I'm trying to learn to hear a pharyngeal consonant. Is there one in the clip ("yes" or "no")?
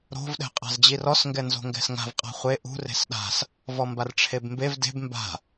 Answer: no